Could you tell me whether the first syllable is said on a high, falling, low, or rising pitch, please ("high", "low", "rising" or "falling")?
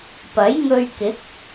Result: rising